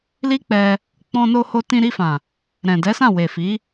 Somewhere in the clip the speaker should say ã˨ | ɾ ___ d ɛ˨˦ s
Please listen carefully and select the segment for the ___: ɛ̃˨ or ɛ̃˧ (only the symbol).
ɛ̃˨